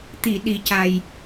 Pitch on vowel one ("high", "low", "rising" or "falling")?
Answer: low